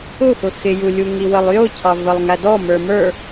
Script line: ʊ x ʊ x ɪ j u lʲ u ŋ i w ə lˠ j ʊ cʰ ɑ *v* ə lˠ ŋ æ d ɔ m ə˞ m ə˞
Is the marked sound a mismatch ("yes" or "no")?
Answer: no